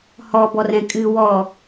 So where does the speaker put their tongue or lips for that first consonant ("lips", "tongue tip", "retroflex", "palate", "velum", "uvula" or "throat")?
throat